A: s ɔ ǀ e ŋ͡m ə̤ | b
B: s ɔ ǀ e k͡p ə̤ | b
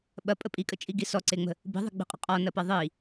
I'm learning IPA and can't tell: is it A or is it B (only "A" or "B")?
A